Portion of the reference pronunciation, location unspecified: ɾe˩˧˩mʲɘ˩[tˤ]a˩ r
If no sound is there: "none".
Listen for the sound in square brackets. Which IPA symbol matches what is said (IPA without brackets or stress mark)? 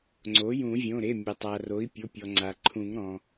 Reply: tˤ